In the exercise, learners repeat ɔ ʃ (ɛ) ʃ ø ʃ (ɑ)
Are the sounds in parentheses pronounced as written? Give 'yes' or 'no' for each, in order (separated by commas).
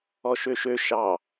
no, yes